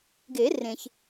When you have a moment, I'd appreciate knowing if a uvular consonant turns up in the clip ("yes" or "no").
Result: no